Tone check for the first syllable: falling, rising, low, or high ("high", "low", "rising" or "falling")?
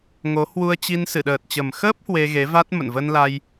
rising